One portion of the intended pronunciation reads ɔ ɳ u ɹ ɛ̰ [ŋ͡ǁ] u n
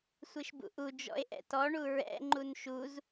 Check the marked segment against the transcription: incorrect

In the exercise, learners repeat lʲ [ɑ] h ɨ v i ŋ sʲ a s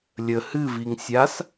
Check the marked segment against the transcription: incorrect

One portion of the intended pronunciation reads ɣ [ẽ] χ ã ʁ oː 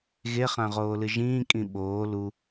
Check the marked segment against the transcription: incorrect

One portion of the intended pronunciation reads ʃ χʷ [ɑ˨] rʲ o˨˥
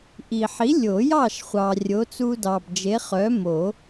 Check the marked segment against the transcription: correct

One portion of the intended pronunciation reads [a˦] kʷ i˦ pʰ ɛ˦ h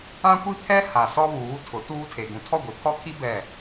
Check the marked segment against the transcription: incorrect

